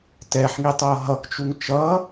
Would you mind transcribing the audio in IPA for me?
tɛħŋitˤʌː ɦʌkt͡ʃuŋ t͡ʃʌ

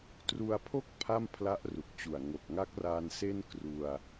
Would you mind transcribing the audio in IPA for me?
tru˧a̯pʰo˥˩k̚ pʰa˥˩mpʰla˦˥ʔru˨˩k̚t͡ɕu˨˩a̯ ŋo˨˩k̚ŋa˦˥k̚raː˧n se˥˩nkru˧a̯

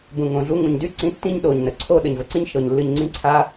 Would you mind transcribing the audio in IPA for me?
bũ˨ŋõ˨ ɮu˧ŋũ˨ɲdy˦ ǀĩ˨˦ tːĩ˦ɲɗo˨ɲnə˨ ǀʰo˦ ɗə˨ɲvə˧ǀĩ˦ɲ ʃɤ˧ɲ lːɨ˧ɲŋ͡ǀĩ˦ǀʰa˦

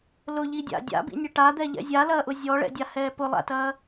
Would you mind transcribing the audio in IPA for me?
lʊʎidʲa̰ dʲa̰bḭnʲɐ ʈad̪ɛʎɛ̰ zʲalɐːʔʊ zʲɔɭɛ̰dʲahɛː pʊlˠa̰tɐː

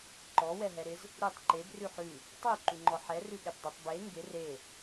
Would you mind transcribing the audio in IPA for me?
ǃɔ wɛɦɛɾɪz | ɾʉtˤ ǃeb rʉħʉ | tˤʉ ǃʉŋ͡ǃɔħɛ rʉɠɛbdˤɪtˤ be ŋɡɪ re

